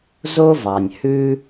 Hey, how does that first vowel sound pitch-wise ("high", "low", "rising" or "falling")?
high